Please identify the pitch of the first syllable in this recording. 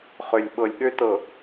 low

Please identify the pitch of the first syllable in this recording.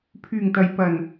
low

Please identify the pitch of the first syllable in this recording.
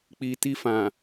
low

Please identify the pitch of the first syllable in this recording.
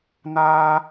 high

